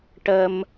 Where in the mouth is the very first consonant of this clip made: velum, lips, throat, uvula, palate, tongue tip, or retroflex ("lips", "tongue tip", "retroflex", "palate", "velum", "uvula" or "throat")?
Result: retroflex